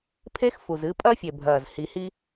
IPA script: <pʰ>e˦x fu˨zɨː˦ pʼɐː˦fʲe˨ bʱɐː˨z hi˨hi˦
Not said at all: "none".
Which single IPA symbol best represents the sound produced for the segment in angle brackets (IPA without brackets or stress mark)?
pʰ